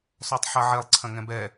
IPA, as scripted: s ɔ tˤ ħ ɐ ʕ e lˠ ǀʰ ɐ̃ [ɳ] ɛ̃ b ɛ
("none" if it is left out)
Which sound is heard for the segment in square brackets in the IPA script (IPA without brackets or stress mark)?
ŋ